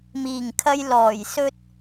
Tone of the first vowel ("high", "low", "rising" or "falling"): low